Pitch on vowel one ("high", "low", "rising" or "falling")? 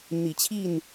low